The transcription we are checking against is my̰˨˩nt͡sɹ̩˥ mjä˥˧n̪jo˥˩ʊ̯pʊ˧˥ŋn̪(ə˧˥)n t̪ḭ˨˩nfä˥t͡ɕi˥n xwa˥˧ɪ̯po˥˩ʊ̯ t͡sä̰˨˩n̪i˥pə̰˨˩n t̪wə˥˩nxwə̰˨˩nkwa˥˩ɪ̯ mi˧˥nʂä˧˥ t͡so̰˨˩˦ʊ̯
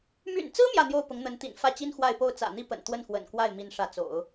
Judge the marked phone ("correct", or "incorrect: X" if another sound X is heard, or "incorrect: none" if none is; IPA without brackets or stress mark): correct